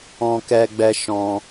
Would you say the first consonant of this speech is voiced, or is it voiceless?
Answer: voiceless